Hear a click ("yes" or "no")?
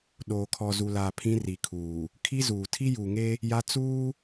no